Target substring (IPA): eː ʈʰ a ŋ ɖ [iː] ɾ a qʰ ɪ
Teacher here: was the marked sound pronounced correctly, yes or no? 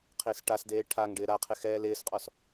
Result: no